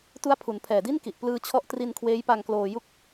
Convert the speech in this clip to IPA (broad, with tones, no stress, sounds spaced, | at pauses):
t u˦˥ a̯ pʰ u˩˦ n pʰ ɛː˨˩ d i˥˩ n k i˨˩ ʔ p l ɯː˧ t͡ɕʰ ɔ˦˥ ʔ t r i˧ n kʰ w eː˦˥ j p a˧ ŋ k l oː˧ j u˥˩ k̚